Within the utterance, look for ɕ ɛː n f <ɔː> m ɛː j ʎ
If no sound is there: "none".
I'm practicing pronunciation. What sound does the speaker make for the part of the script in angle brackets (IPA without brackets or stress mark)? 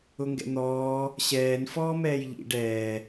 ɔː